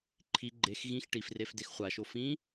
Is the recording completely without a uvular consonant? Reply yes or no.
no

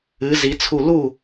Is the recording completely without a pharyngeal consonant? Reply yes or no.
yes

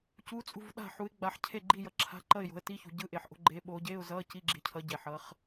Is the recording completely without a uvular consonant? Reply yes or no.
no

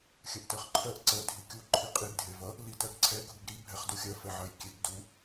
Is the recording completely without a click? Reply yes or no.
no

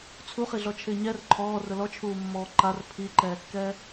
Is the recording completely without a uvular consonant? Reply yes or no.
no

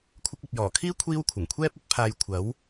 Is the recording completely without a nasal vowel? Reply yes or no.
yes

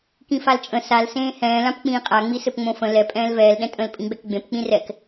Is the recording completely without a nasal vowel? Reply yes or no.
no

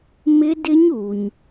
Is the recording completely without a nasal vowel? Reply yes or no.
yes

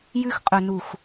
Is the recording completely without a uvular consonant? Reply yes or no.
no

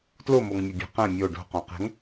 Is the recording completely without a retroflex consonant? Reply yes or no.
no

